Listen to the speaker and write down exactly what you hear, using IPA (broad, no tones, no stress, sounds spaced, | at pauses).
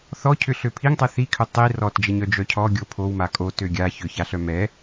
θ ɔ cʰ ʏ ɬ ø pʰ i ŋ tˤ ɛ θ i kʰ ʏ tˤ i r ɔ t d͡ʒ ɛ ɲ œ d͡ʒ œ cʰ ɔ ɡʲ o pʰ o w m a kʼ o t ø ɡʲ a ç ʏ ç a ɬ œ m ɛ